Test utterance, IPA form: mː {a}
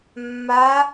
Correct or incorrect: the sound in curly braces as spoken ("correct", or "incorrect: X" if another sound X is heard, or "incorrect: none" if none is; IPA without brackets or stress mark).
correct